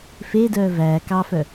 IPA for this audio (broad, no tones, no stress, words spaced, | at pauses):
fedœː væː kɑfœ